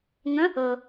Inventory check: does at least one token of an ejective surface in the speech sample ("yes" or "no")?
no